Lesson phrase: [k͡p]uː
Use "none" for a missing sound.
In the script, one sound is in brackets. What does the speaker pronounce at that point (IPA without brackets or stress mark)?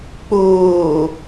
k͡p